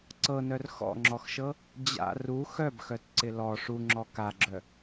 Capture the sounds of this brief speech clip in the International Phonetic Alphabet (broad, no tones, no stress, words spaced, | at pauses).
ǀɤnœr xɔ̰ŋ͡ǁɔxʃɤ | d͡ʑa̰ ru xœbxœtǀɪ lɔ ʂuŋ͡ǁɔ kaɡ͡ǁœ